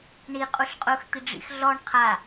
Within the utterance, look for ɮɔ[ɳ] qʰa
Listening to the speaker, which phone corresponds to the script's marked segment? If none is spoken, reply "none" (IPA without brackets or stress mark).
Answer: ɳ